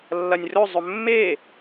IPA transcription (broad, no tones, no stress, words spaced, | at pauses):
lːɐnʲrɵ zˤɵmːe